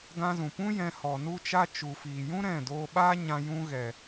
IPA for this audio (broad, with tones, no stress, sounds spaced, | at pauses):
ɡ ã˧ z ũ˨ p ũ˦ j ɛ̃˧ h ɔ˨ n u˧ t͡ʃ a˧ t͡ʃ u˨ f iː˨ j ũ˦ ɾ ɛ̃˦˨ d oː˧ ɓ aː˦ ɲ ã˧ j ũ˧ ɣ ɛ˨